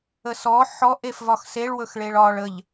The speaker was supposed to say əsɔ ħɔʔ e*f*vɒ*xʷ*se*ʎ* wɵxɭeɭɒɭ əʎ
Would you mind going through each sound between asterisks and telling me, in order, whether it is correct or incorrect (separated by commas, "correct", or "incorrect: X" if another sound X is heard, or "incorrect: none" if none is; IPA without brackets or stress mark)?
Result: correct, incorrect: x, incorrect: ɭ